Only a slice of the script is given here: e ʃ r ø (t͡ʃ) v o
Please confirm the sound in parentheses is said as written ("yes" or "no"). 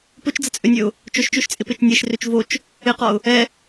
yes